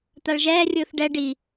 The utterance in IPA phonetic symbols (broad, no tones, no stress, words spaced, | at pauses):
t̪aɭʒɛːrʲɯːθ ɖɛ ɖi